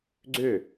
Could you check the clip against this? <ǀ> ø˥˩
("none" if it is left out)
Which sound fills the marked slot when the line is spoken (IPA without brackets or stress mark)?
ɡ͡ǀ